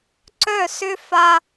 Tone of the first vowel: falling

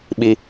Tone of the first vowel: low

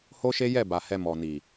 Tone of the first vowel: high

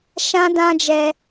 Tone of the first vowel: high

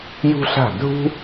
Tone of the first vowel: high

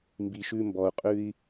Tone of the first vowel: low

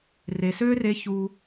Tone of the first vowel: low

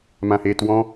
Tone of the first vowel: high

